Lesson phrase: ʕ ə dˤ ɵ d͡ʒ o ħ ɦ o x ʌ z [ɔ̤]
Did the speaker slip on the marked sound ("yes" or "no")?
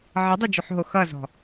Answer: no